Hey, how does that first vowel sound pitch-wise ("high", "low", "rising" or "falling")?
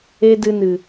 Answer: high